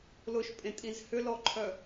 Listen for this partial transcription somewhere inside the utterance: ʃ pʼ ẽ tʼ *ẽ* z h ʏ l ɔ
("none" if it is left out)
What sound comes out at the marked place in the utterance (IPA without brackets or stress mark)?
ĩ